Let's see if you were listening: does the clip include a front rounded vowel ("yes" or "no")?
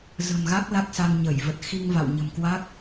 no